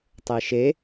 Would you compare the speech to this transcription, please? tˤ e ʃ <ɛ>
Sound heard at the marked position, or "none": e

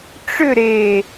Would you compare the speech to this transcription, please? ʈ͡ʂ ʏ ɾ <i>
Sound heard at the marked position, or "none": e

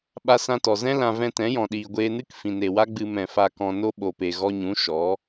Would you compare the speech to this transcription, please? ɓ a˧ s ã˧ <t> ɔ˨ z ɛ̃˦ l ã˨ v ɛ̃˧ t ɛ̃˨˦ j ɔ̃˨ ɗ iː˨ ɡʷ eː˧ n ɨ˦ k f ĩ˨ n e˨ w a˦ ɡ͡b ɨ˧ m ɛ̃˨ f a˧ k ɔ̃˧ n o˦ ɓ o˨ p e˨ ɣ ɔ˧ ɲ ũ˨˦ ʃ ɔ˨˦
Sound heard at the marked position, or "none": t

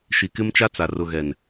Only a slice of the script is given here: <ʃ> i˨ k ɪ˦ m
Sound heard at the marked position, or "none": ʃ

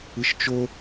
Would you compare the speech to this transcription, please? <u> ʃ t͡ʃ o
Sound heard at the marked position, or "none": ɯ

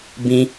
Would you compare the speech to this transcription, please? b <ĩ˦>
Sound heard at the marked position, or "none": ĩ˦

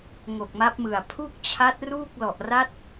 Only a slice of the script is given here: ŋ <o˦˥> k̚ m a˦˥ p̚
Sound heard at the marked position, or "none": o˨˩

